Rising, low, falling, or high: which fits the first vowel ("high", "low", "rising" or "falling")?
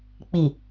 low